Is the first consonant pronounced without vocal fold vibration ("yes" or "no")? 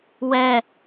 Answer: no